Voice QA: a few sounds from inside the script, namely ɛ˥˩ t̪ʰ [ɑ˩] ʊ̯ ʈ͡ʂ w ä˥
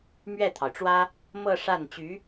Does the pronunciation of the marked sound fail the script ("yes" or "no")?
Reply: no